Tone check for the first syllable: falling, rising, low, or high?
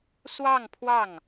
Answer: falling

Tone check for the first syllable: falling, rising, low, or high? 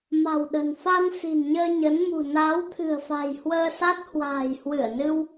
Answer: low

